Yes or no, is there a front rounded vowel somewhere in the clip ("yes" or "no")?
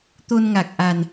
no